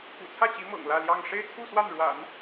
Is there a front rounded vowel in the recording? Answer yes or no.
no